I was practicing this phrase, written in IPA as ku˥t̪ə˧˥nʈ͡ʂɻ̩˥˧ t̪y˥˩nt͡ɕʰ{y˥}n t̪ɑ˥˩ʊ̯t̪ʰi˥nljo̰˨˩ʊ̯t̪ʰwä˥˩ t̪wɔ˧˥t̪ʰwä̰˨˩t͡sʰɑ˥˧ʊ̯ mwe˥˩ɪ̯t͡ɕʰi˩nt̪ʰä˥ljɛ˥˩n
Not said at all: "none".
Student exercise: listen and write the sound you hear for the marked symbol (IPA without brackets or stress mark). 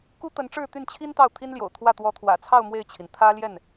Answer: i˥